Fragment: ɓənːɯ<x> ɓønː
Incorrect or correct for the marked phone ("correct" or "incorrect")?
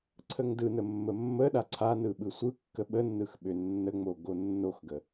correct